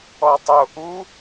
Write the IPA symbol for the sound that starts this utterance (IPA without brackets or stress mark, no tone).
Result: ɔ